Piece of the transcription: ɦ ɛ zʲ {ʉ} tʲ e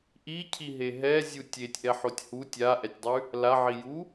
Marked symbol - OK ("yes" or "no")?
no